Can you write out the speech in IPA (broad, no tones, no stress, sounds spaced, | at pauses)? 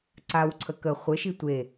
ǀ a w ǀʰ ə k ə χʷ ɘ ʃ i tʷ e